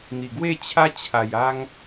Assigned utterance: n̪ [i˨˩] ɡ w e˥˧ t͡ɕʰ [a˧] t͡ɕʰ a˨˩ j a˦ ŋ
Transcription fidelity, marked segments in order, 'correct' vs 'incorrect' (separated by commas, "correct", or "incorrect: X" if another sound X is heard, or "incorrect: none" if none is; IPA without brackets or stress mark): correct, incorrect: a˦